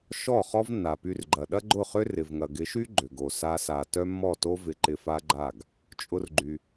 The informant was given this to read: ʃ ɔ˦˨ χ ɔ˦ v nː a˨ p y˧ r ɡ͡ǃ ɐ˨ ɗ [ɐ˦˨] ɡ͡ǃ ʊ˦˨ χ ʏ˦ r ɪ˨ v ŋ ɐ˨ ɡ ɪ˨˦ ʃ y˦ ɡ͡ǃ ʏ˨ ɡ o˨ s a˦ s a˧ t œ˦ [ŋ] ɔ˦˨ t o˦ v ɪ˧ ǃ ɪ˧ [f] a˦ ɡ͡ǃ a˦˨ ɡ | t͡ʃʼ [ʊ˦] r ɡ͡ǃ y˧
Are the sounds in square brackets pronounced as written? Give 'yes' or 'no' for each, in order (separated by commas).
no, no, yes, yes